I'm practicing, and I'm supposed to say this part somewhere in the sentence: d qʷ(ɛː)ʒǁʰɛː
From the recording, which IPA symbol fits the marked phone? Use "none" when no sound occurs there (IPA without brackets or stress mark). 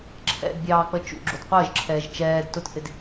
əː